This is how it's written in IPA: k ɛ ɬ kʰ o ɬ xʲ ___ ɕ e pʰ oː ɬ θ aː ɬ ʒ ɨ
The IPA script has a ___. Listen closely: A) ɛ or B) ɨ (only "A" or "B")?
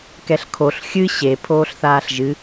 B